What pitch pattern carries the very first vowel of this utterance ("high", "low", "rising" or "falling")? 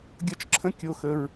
high